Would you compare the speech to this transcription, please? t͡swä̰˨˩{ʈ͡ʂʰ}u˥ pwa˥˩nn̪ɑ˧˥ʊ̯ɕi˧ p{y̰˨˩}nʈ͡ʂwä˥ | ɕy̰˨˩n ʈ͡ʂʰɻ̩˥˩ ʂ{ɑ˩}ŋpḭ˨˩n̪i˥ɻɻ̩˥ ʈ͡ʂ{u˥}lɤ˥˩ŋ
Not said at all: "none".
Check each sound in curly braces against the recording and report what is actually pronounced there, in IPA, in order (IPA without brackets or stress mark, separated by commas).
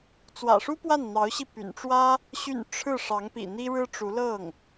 ʂ, y̰˨˩, ɑ˧˥, u˧˥